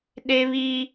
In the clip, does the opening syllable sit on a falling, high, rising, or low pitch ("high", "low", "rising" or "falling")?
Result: high